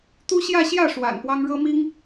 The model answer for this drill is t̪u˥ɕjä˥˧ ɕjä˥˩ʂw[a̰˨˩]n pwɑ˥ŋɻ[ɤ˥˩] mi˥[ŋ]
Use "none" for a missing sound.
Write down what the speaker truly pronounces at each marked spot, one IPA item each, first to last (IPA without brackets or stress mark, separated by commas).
a̰˨˩, ɤ˥, ŋ